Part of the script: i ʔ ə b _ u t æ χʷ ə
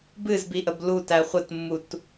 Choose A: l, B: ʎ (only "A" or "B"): A